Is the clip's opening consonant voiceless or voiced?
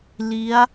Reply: voiced